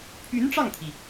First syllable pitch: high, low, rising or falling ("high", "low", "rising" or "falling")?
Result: rising